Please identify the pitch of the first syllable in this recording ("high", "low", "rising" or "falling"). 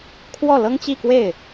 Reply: falling